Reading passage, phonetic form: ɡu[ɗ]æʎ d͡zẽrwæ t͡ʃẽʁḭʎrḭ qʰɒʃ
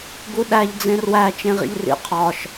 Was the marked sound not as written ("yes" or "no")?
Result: no